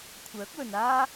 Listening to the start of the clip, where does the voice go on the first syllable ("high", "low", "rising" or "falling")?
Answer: rising